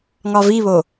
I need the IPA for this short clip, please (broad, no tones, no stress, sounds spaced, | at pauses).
ŋ ɒ v i β o